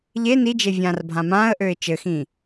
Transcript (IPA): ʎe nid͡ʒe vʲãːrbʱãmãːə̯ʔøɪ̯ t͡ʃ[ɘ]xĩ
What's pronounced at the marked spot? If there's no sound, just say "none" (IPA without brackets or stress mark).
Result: ɘ